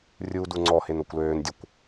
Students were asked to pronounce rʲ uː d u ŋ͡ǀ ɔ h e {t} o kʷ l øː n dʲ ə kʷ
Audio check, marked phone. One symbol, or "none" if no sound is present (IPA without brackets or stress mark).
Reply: n